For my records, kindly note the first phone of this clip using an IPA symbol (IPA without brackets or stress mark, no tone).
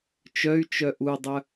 t͡ʃ